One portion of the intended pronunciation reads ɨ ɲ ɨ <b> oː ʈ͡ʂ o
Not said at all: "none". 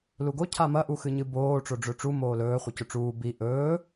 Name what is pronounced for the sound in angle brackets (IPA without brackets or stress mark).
b